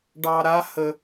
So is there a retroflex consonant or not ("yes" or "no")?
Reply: yes